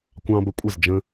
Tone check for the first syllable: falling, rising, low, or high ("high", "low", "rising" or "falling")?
high